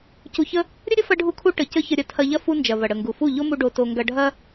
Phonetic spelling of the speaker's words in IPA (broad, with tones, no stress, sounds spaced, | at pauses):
c u˧ ç ə˦ | ɾʲ ə˦ ɾʲ ə˦ f ɐ˦ ɖʱ u˧ kʰ u˧ ʈ ə˨ c ə˦ ç ə˧ ɾʲ ɐ˧ tʰ ɐ˧ ʎ ɐ˦ f u˦ n d͡ʒ ɐ˨ v ɐ˨ ɽ ə˨ ŋ ɡ u˨ f u˦˨ ʎ o˦ m u˧ ɖ o˧ t o˧ ŋ ɡ ɐ˧ ɖʱ ɐ˦